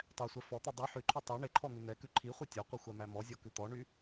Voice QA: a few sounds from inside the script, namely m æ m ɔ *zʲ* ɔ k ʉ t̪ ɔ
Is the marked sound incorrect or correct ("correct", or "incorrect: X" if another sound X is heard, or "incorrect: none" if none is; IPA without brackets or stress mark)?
correct